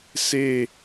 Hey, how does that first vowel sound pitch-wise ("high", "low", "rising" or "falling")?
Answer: falling